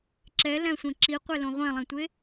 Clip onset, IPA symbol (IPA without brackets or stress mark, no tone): ǁ